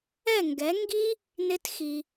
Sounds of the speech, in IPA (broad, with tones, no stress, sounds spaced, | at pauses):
ɛ˥˨ ŋ ɡ ɛ˨˥ ŋ ɡ i˥ | n ɪ˥ t x i˧